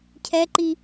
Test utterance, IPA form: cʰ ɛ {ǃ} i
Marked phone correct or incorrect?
correct